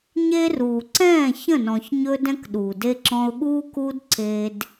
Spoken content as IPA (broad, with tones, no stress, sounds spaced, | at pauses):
ɲ e˦ r uː˨ ǀ ɛ̃ː˦˨ ç ə̃˦˨ n ɔ̃˨ ç ɲ ɵ˦ d ɛ̃˦ k ɗ uː˨ d e˦ ǁ ɔ̃˦ ʊ̯ ɠ uː˦ k uː˦ d ǀ e˦ d